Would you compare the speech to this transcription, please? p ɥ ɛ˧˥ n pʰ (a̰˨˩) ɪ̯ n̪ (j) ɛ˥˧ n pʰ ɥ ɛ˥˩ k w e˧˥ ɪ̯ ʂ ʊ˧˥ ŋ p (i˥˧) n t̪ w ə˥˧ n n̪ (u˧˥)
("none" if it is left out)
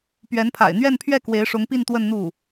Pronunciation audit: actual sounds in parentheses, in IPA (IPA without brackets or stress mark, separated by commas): a̰˨˩, ɥ, i˥˧, u˥˩